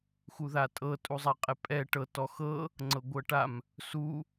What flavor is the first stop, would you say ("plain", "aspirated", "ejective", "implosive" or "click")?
ejective